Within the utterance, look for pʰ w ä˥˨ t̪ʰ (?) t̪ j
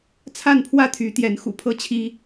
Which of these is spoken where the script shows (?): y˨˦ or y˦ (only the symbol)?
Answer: y˨˦